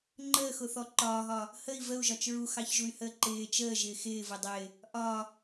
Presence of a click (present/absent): present